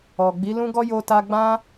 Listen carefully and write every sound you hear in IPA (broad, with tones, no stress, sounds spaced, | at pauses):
ɔ˨ ɡ͡b i˨˦ l ũ˦ ɡ ɔ˦ j o˧ t a˧ ɡ͡b ã˦